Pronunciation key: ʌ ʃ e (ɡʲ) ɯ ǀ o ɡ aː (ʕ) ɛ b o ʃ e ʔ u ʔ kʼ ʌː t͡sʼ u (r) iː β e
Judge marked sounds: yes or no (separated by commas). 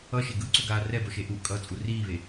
no, no, yes